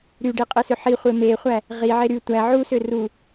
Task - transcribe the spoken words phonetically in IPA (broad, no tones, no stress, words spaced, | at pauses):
ɾyɖi qʼɯsøħiχʷe meχʷæ | ʁiʕe ɾy tʷæ ʕusø ru